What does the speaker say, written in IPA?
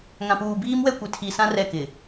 ŋ ã˨ p uː˨ b iː˦ m w ɛ˦ kʷ ɪ˨ tʰ i˨ s ã˦ r ɛ˦˨ k ɪ˨

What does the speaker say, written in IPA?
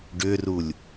ɖ ʏ r u lʲ

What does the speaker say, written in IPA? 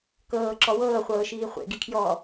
k ɤː ǁ ɔ w ɤː χʷ ɤː ʃ iː χʷ ḛ ɡ i kʰ j ɔː

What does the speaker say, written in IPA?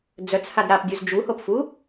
d͡z œ t͡s h a d ɾ a p dʲ u z d͡ʒ u h o p f u

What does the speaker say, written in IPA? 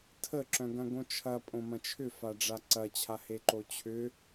tʰ ə ǁ œ̃ ɡ ɐ̃ ɡ õ t͡ʃʰ ɐ pʼ õ m ɐ̃ t͡ʃʰ ʏ f a ɖ͡ʐ a ǀ ɐ t͡ɕʰ a h e ǃ o t͡ɕʰ ʏ

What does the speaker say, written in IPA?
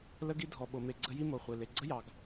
l ə˥ ɡ i˥ dʱ ɔ˩ ɓ o˩ m e˩ ɡ͡ǀ ə˥ j i˥ m o˩ χʷ e˩ l e˩ ɡ͡ǀ ə˥ j ɑ˩ ɡ

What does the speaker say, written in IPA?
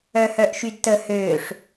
œ h œ ʔ ʃ y d t ə h øː ʂ

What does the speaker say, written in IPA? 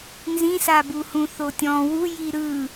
n z ĩ s a b u h ũ θ o tʲ ɔ̃ w u j i ɾ ɯ

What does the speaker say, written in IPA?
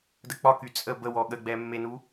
d ə k͡p ɒ k y t͡sʼ ə b ə w ɔ ɠ ə ɡ͡b ɛ mː e n u

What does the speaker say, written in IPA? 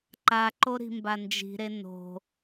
ǃ a ǃ o ɾ i̤ m b a n d͡ʒ i̤ ɾ e n o̤

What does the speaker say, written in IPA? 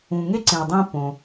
ũ˨ ŋ e˥ ǀ ẽ˨ ə̯ dˤ ẽ˦ p õ˨

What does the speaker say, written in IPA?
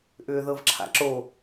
ʔ ʏː ð ɤ v ǁʰ a̰ ǁ o

